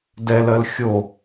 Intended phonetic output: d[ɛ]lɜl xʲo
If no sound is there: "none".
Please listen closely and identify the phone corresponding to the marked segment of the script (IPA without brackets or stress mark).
ɛ